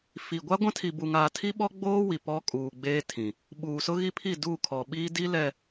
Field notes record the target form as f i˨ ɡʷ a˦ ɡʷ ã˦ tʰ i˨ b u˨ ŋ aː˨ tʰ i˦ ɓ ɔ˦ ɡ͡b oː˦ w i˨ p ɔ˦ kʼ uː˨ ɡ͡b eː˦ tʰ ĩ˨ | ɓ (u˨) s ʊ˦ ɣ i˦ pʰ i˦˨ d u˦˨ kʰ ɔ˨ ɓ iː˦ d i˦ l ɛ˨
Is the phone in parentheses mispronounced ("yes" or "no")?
yes